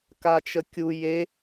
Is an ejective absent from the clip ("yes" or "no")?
yes